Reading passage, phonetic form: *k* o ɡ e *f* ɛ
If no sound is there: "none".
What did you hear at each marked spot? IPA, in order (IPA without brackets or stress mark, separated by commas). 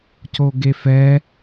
c, f